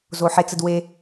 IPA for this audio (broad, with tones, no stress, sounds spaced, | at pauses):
z o˦ ħ e˥ t͡s ə˥ d w e˥